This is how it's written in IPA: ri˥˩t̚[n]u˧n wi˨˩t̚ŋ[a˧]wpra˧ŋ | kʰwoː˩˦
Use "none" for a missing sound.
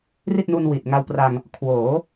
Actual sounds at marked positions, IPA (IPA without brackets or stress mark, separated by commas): n, a˧